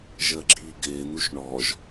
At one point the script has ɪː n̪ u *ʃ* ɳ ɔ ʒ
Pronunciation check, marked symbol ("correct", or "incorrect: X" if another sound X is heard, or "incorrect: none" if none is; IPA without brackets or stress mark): correct